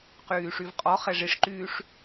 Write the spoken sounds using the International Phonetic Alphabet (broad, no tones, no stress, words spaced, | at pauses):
qyːʂyvqʼɔχɛ ʐiʂǃyːʂ